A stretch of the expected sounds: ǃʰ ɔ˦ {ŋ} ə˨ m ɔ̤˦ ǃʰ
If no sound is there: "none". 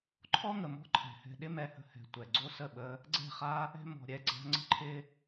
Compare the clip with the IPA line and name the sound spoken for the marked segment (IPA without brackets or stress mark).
ŋ